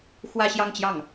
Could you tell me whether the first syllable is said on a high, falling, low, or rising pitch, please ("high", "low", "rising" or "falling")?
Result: falling